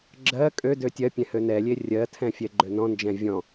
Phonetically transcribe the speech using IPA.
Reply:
ɡ͡ǁ ɜ kʼ ø d ø tʲ ɜ pʲ ɛ̃ h ø n ɛ lʲ e rʲ ɜ tʰ ɛ̃ fʲ ɛ ɡ͡ǃ ø n ɔ̃ n d͡ʒ ɛ̃ vʲ ɔ̃

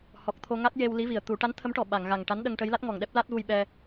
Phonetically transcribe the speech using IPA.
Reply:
h ɔ˨˩ k̚ t̪ʰ o˧ ŋ a˦˥ t̚ j e˧ w l i˧˥ v i˨˩ ə̯ t̪ u˨˩˦ ʈ a˧˥ n t̪ʰ ə˧˥ m ʈ ɔ˨˩ ɓ a˨˩˨ ŋ ɣ a˨˩ ŋ ʈ a˧˥ n ɗ ə˧ ŋ ʈ ə˧˥ j l a˦˥ t̚ ŋ ɔ˨˩ ŋ ɗ ɛ˦˥ p̚ l a˦˥ t̚ v u˧ j ɓ ɛ˧

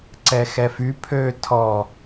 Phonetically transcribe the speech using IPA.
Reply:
ǀ ɛ x ɛ f y pʰ ø tʰ ɔ

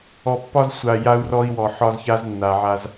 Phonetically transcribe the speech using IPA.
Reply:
ɔ˨ pː ɒ˦ z sʷ a˨ j a˦ u̯ r ɔ˦ i̯ w ɔ˨ ħ ɒ˦ z ç a˦ z nː a˨ ʕ a˦ z

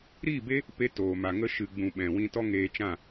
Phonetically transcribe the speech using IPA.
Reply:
ɾ iː˦˨ b e˦ | p e˧ t oː˨ m a˨ ŋ ə˧ ʃ ɨ˨ ɡ͡b ũ˨ ɓ ɛ̃˨ w ĩ˧ t ɔ˦ ŋ eː˧ t͡ʃ ã˦˨

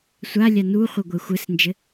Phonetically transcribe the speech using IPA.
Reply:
sʷ a lʲ a n u χʷ ɨ ɡʷ e xʷ ɘ s n d͡ʒ ɘ

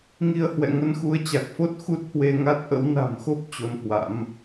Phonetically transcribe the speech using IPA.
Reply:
ŋ i˧ ə̯ h w ɛ̰˧˨ ŋ ə˧ n x u˨˦ ə̯ t͡ɕ a˨˩ k̚ f o˦˥ t̚ x u˦˥ t̚ h w e˧ ŋ a˦˥ t̚ ʔ ə̰˧˥ w n a̤˨˩ m x o˦˥ p̚ t͡ɕ o˧ n h w a̰˧˥ m

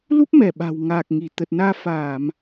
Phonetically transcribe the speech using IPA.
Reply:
l u˦˥ p̚ m ɛ˧˩ ɓ a̤˨˩ w ŋ aː˨˩ k̚ ŋ i˧˩ t̪ ə˨˩ t̚ n aː˧ f aː˧˩˨ m

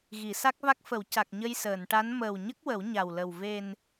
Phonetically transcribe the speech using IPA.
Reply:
ɣ i˨˩˨ s a˦˥ k̚ v a˦˥ k̚ f ə˨˩˦ w c a˨˩ k̚ ɲ ə˧ j s əː˨˩˨ n ʈ a˧˥ n m əː˨˩ w ɲ ə˦˥ k̚ w ə˨˩˦ w ɲ a˨˩ w l ə˨˩ w v e˨˩ n

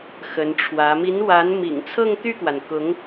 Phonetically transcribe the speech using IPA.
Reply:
x ə˧˥ n ʈ͡ʂʰ w ä˧˥ m i˧˥ n w a˧˥ n m ḭ˨˩ ŋ t͡sʰ ɤ˥˧ ŋ t̪ y˥˩ k w a˩ n k ʊ˧˥ ŋ

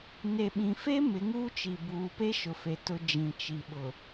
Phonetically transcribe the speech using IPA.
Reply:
n e˨ ɓ ĩ˨ f e˦ m ɪ˨˦ ŋ uː˦ t͡ʃ i˨ b uː˨ p e˦ ʃ ʊ˨ f e˨ t ʊ˨ d͡ʒ ĩ˨ t͡ʃ i˨ ɓ ʊ˨

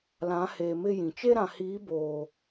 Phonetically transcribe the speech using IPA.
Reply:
l ã˨˦ h eː˨ m ɪ˦ j ĩ˨ t͡ʃ e˦ ɾ ã˨ h iː˨˦ b oː˨

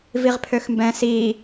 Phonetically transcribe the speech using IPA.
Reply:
v i ʁ pʰ ø x m b ɛ̃ s i

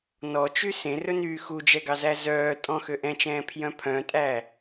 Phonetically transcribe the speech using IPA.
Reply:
n ɔ t͡ʃ y s ẽ r ɵ n yː x u d͡ʒ ɛ ɡ ɑ z æ z œː tʼ ɔ̃ x ø ʔ ɛ̃ t͡ʃ ɛ̃ː pʰ j œ̃ pʰ œ̃ tʼ æ

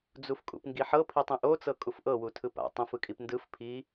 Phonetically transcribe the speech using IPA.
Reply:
d͡z u f kʼ ṵ p ŋ ɡ i ħ ɤ pʰ i tˤ ĩ ʔ o t͡s ɤ kʼ u f ʔ ɤ w u tʰ ɯ p a̰ tˤ ĩ f ɯ kʼ i p n d ɯ f pʰ i

